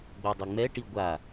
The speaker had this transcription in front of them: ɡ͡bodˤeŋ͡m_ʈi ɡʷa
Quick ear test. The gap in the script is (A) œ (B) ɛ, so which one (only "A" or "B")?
B